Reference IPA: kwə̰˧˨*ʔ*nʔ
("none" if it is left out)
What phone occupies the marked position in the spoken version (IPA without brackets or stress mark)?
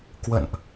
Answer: none